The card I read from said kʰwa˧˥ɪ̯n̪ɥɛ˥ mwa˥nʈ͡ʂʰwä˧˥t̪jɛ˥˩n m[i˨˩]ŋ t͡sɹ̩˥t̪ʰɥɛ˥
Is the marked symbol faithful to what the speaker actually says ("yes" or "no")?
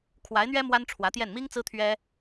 no